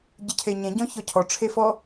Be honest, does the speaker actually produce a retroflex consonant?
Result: yes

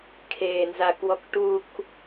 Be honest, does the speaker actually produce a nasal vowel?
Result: no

